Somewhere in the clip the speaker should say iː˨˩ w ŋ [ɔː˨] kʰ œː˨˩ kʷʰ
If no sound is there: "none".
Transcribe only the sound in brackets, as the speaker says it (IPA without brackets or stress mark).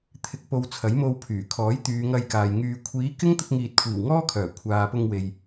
ɔː˥